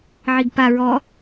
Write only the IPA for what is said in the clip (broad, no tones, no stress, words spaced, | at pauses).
ʕiɡpa ɹɔ